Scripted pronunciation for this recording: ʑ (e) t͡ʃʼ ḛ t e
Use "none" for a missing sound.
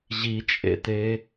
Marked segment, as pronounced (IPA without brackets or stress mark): i